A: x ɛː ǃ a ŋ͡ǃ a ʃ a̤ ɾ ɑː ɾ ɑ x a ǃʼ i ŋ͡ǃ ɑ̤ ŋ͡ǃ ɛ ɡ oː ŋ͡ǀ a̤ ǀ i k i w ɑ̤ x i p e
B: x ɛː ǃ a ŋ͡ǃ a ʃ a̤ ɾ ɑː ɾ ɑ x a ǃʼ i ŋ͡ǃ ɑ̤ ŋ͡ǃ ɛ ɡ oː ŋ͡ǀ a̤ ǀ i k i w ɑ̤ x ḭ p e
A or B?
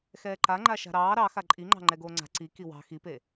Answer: A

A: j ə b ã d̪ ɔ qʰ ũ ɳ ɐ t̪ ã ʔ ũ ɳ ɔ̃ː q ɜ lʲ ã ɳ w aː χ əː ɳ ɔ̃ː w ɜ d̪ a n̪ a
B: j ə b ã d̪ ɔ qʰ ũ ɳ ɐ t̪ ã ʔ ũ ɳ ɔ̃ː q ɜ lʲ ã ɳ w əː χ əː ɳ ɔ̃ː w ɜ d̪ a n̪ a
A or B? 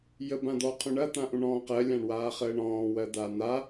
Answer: A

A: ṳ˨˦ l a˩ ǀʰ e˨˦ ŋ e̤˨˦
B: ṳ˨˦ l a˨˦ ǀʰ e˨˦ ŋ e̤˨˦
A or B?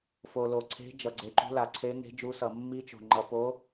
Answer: A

